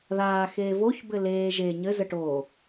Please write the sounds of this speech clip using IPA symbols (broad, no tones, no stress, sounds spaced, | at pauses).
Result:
ð aː x eː v o ç b ɘ l eː ʒ e ɲ ɘ z ə ʈ oː